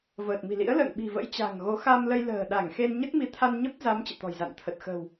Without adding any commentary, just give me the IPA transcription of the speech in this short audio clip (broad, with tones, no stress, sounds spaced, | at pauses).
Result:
v əː˨˩ t̚ m i̤˨˩ l ḭ˧˥ ə̯ l ə̰ː˧˨ ŋ ɓ i̤˨˩ v ə̰˧˥ j t͡ɕ a̤˨˩ ŋ ɣ o˨˦ x a˧ m l ə˧ j l ə̤ː˨˩ ɗ a˧˩ ŋ x e˧ n ɲ ə˦˥ t̚ m i˨˦ t̪ʰ a˧ n ɲ ə˦˥ p̚ z a˨˦ m t͡ɕ ɨ̰˧˨ t̪ ɔ̤˨˩ j z a̰˧˨ n t̪ʰ ə˨˩ t̚ x ə̤˨˩ w